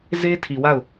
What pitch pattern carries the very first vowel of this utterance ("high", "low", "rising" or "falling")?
high